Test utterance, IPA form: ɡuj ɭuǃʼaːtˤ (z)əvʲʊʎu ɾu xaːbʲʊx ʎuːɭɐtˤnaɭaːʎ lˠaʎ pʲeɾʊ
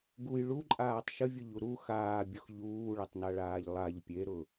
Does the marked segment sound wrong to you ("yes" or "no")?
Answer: yes